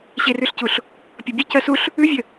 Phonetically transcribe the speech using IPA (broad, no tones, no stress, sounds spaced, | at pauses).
ɕ e r ʉ ɬ c u ɬ | pʲ ʌ bʲ ʉ c ɜ s u ɬ | ʉ vʲ ə